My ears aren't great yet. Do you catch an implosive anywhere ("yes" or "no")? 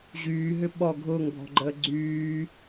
yes